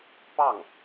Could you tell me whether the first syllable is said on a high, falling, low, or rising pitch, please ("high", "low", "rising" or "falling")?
falling